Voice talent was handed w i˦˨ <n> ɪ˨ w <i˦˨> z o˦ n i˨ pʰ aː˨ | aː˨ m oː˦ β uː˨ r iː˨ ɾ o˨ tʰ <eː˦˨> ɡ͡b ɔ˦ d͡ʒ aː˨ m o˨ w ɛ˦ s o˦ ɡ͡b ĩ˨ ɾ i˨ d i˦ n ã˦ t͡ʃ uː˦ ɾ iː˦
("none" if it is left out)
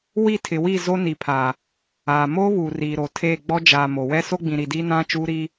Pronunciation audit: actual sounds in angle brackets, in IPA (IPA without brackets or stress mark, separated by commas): tʰ, i˦˨, eː˦˨